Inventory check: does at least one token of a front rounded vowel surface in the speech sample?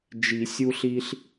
no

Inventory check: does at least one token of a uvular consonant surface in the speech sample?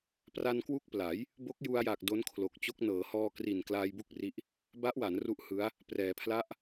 no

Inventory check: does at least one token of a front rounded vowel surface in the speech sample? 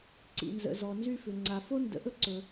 yes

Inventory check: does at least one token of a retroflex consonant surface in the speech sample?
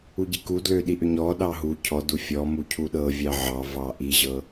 no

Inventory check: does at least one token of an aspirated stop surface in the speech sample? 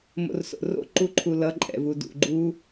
yes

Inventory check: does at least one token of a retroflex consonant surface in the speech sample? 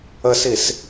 no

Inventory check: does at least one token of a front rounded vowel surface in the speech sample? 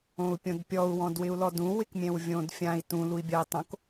no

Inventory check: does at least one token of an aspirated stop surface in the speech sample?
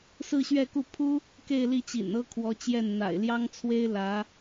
yes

